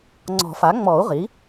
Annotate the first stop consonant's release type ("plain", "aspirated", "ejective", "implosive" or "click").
click